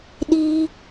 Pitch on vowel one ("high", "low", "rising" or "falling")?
high